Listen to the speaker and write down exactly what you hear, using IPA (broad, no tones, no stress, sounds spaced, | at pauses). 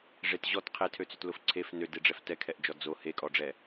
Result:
ʐ e t ʑ ɔ t qʰ e tʰ ø t͡s ø t l ʊ f ǀʰ e f n ø d e ɖ͡ʐ ɛ f t ɛ kʰ ɛ ʔ d͡ʒ ɔ d͡z o h e kʼ ɔ ɖ͡ʐ ɛ